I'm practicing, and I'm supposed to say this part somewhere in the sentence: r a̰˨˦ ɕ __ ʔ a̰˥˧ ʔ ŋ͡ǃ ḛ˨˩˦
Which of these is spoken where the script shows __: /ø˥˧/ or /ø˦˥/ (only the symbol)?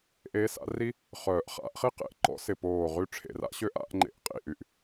ø˦˥